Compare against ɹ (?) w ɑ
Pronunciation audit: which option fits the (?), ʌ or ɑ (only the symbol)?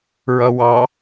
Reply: ʌ